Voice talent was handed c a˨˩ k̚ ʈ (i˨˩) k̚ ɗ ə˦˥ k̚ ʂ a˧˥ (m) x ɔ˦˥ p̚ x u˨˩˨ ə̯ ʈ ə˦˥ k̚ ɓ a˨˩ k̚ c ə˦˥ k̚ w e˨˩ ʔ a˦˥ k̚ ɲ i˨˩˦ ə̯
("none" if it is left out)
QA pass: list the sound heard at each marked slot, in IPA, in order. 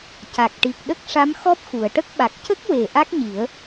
i˨˩, m

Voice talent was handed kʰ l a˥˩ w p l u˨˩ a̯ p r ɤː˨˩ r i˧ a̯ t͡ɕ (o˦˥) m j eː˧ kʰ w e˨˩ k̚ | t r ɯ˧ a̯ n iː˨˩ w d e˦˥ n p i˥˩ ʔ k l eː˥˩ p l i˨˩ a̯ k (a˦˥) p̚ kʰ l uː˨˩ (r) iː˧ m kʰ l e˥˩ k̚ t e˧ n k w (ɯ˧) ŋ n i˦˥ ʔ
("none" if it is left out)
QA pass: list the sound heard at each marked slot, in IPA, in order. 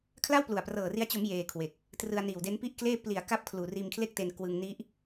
o˩˦, a˥˩, r, ɯ˧

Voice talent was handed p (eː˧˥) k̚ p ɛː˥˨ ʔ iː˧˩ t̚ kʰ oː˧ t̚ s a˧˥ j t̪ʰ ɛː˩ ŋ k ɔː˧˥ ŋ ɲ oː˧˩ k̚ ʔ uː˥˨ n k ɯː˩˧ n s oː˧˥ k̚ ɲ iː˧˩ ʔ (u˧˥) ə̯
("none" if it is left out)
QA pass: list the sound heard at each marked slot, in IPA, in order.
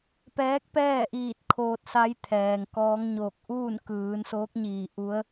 ɛː˧˥, u˧˥

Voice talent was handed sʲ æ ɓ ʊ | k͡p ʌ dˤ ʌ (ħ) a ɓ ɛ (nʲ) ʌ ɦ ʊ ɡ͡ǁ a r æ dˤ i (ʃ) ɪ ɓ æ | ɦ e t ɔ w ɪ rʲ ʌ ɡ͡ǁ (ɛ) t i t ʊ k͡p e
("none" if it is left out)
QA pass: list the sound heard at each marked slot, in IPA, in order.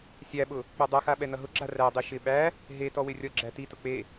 x, n, ʃ, æ

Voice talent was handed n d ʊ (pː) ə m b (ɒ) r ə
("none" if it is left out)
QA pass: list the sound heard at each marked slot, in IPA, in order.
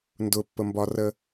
pː, ɒ

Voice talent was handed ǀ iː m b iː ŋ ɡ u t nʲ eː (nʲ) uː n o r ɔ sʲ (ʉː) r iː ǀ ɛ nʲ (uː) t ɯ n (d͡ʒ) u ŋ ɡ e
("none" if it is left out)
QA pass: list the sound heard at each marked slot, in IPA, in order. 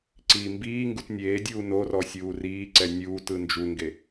dʲ, uː, uː, d͡ʒ

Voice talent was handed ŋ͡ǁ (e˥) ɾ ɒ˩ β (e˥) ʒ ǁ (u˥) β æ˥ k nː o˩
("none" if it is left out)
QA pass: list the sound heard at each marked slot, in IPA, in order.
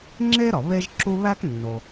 e˥, e˥, u˥

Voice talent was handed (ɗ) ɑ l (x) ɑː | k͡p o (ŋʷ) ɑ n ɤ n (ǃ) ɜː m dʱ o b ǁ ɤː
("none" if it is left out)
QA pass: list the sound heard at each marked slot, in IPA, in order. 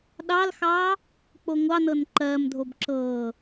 ɗ, x, ŋʷ, ǃ

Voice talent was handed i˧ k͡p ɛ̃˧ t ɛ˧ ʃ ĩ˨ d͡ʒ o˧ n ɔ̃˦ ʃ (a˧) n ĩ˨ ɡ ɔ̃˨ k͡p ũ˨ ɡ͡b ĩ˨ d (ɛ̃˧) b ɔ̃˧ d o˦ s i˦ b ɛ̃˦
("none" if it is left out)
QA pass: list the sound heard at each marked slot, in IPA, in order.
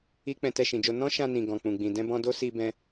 ã˧, ɛ̃˧

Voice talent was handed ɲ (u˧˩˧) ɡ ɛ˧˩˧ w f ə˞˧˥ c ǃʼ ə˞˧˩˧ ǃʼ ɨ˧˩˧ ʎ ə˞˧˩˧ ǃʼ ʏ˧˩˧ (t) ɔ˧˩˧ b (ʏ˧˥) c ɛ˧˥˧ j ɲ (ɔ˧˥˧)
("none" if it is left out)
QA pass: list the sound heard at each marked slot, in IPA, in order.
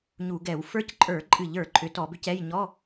u˧˩˧, t, ʏ˧˥, ɔ˧˥˧

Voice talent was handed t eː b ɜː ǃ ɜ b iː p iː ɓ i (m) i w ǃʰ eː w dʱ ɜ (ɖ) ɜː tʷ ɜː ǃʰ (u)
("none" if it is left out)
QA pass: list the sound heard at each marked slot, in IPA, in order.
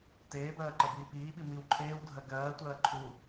m, ɡ, u

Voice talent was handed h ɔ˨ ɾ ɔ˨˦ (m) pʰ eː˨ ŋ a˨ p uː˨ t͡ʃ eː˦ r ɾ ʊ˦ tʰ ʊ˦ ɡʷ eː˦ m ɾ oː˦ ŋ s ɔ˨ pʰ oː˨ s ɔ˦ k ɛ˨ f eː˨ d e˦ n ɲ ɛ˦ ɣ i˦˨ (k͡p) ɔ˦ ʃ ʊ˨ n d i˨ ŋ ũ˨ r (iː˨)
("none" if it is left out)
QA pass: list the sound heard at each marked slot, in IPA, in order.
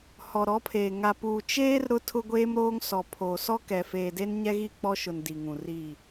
none, k͡p, iː˦˨

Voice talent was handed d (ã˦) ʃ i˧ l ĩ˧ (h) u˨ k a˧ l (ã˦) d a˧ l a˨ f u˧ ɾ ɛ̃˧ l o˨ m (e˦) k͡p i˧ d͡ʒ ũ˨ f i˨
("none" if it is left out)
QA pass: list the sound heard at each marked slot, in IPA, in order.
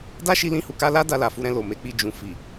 a˦, h, a˦, e˨˦

